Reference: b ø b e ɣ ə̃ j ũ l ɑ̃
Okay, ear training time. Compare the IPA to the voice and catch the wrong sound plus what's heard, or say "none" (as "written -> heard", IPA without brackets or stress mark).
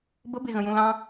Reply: ø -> ə